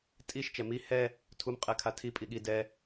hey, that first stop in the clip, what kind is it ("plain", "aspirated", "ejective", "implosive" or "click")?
ejective